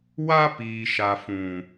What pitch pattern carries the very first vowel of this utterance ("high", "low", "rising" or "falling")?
high